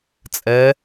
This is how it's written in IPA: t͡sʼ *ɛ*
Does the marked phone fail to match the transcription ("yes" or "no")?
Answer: no